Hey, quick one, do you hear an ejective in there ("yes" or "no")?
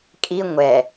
yes